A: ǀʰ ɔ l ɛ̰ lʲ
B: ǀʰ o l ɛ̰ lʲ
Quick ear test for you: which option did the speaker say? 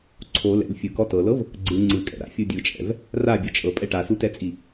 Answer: B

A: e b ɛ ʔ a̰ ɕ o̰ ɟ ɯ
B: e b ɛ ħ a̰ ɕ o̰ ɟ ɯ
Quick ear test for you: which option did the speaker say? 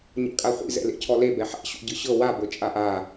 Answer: B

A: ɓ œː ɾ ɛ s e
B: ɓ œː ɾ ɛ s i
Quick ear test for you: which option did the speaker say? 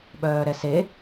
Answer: A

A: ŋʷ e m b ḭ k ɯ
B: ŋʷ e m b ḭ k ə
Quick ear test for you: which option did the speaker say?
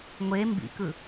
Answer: A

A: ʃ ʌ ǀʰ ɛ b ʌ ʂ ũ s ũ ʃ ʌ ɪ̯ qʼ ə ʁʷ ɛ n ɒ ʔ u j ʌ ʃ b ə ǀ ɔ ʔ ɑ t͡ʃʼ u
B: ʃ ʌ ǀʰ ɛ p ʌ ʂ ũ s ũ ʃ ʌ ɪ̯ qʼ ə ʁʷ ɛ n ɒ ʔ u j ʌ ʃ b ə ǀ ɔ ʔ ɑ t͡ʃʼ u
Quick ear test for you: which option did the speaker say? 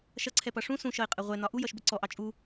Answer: B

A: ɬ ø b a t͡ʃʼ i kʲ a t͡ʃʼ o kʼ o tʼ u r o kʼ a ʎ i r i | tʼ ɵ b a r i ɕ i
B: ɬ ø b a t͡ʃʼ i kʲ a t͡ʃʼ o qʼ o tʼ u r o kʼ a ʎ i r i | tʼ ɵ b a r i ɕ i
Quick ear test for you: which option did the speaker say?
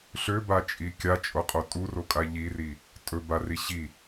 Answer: B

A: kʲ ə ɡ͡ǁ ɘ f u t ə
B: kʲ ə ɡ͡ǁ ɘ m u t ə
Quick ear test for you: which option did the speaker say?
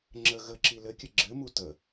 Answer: B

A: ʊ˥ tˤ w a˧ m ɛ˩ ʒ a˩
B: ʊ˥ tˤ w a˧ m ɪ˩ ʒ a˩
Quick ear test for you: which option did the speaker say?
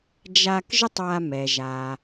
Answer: A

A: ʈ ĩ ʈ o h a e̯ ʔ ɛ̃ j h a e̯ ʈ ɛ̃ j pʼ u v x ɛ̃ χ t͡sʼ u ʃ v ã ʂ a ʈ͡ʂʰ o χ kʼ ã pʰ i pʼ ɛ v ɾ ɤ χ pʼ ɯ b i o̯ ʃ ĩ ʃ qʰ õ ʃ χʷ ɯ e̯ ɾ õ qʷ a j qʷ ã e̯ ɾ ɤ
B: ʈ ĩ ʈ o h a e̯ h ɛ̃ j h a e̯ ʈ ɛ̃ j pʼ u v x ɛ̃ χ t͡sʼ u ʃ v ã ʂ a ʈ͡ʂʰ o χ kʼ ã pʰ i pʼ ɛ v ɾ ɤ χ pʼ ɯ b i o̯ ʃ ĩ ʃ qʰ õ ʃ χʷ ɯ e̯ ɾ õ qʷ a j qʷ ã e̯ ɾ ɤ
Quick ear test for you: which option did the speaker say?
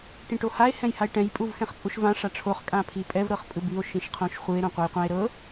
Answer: B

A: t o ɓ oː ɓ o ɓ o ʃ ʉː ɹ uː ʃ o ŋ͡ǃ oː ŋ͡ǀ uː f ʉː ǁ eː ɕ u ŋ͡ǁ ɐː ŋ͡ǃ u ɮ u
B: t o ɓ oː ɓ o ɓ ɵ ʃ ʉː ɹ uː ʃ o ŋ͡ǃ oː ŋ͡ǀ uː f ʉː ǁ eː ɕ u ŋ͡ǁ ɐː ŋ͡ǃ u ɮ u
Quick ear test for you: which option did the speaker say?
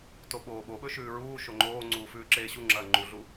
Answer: B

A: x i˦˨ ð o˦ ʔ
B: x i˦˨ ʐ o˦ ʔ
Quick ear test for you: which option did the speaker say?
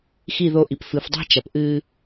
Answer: A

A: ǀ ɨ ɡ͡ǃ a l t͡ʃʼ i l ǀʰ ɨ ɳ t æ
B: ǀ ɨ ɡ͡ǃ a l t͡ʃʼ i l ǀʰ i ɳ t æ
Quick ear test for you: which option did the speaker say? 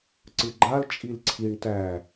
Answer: B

